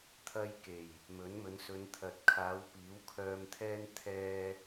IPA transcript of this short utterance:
t̪ʰɐ˥j ke˨˩j | mɵ˨˥nmɵ˨˧n sɵ˨˧nt̪ʰɐ˨t̚kʰaː˨˧w piː˨˥wkʰœː˧mt̪ʰɛː˥n t̪ʰɛː˥

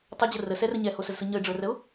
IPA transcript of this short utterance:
tˤəd͡ʑə rəsɛrə ɲɛhosəzsɯ ɲəɪ̯ɖ͡ʐə˞rəʊ̯

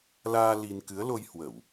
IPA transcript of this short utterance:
laː˧ li˧n kɨ˨˦ə̯lo˧j hwə˧˩˨w

